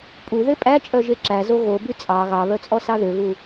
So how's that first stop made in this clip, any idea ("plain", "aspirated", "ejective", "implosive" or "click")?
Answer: ejective